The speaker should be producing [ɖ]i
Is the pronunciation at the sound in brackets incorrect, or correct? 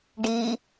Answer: correct